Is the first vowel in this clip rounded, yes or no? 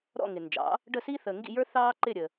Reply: yes